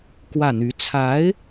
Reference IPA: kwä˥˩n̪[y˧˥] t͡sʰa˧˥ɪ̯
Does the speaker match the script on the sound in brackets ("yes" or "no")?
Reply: yes